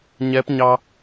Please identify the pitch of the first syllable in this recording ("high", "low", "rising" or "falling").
rising